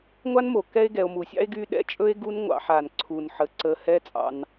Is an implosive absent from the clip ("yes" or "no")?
no